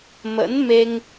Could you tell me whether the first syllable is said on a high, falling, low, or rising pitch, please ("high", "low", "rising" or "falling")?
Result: rising